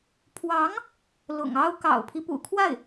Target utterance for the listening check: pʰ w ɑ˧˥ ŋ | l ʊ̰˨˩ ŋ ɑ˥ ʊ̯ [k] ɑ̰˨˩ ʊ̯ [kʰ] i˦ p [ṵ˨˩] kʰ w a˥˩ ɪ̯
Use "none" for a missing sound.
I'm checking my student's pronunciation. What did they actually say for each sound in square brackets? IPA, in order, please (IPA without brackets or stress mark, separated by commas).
k, pʰ, ṵ˨˩